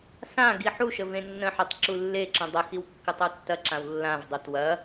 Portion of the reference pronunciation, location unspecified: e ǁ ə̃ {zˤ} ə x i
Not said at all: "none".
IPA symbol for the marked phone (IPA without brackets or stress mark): dˤ